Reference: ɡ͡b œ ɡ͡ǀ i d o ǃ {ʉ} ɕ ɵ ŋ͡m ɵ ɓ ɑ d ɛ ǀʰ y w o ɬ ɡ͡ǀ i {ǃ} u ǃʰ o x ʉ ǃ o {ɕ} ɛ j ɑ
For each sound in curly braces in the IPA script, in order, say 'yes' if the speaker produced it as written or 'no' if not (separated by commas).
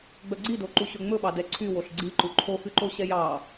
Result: no, yes, yes